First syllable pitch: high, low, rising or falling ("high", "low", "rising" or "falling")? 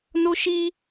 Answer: high